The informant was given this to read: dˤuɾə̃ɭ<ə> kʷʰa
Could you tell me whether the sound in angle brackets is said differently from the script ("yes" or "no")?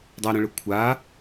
no